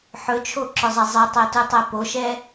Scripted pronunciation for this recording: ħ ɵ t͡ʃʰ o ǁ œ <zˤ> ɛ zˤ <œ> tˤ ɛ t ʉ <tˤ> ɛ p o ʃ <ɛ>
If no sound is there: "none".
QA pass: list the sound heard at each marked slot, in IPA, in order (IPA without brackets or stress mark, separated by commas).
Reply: zˤ, ɛ, tˤ, ɛ